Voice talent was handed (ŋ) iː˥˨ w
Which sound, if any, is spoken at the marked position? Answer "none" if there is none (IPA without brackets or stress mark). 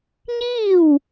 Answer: ɲ